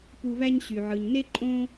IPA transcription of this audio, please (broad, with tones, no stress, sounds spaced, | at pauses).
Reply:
p u˨ β æ˦ ɲ ɕ y˩ ʕ ɯ˩ ɲ n e˥ ǃʼ õ˦